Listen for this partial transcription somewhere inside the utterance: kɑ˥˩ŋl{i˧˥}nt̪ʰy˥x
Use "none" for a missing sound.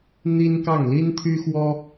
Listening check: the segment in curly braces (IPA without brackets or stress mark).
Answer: i˥